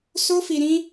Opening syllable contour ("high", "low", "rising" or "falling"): high